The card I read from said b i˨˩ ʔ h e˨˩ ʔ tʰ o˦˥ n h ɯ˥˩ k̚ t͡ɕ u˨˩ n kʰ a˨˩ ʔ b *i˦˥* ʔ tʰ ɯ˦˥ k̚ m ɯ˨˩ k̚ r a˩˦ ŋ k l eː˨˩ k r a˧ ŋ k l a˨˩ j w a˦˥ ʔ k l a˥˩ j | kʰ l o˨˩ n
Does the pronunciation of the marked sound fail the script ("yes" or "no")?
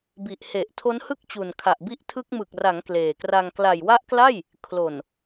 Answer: no